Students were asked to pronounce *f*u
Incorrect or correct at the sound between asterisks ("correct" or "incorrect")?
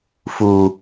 correct